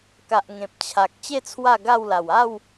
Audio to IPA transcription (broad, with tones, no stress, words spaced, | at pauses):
ka˨ʔ ŋẽ˨p̚ t͡ɕʰa˨k̚ t͡ɕe˥˧ t͡sʰwa˥˧ɡa˥˧wla˨˩w a˥˧w